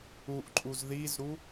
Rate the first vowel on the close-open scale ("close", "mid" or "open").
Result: close